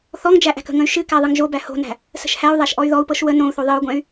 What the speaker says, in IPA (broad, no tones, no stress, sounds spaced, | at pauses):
θ ɔ ŋ d͡ʒ æ ʔ æ̤ k ə̤ ŋ ə̃ y̯ ʃ ɨ k æ ðˤ ɨ ŋ ʒ o b æ h o̤ n æ̤ | s ə̤ ʃ h æ u̯ ðˤ æ ʃ ʔ ɔ y̯ ð ɔ u̯ p ɤ ʃ w ə n õ u̯ θ o ðˤ ɨ u̯ ɡʷ ɛ̃ y̯